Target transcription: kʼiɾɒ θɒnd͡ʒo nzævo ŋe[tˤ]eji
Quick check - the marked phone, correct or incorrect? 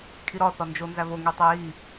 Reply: correct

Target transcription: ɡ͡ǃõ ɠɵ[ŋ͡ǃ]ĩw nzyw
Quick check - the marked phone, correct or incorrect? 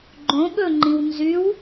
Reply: correct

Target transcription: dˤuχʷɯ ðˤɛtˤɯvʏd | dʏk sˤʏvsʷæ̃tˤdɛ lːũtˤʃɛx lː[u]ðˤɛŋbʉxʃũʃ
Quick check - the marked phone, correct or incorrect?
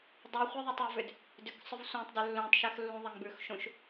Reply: incorrect: ũ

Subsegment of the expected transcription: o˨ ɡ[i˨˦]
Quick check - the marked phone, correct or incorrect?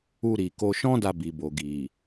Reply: incorrect: i˨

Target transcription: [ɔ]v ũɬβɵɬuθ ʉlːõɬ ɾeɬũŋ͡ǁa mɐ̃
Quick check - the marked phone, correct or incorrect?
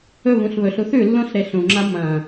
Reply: incorrect: ɵ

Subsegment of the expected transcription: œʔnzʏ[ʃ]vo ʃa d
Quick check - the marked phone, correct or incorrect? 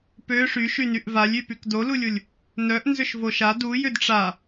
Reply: correct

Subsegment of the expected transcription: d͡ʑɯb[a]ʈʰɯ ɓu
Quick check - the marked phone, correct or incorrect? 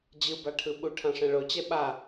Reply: correct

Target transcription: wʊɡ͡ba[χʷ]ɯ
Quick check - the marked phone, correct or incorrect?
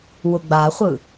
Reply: correct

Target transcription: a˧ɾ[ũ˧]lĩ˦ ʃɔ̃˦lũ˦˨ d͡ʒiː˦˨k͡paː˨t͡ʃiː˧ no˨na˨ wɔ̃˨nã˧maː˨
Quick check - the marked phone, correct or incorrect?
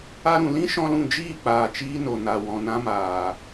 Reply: incorrect: ũ˨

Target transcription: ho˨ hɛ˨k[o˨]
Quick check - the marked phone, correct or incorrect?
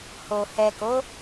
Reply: incorrect: o˨˦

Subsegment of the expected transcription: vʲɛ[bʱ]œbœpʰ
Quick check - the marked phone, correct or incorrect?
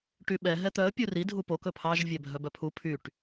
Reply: correct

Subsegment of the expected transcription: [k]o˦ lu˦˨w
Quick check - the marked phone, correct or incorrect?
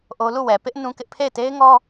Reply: incorrect: ʔ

